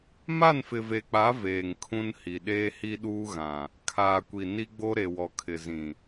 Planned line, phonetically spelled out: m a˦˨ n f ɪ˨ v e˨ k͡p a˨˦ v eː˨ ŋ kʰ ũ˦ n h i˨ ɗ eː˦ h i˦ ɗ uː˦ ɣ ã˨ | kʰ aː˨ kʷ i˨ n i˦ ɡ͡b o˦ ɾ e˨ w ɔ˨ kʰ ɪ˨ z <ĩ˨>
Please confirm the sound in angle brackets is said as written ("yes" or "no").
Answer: yes